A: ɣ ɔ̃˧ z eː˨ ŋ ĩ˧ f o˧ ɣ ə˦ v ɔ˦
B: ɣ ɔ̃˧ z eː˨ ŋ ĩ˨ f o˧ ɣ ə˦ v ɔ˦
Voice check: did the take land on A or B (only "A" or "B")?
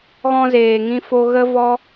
A